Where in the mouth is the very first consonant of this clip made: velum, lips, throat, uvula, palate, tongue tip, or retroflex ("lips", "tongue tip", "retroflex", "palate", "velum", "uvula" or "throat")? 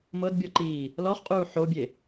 lips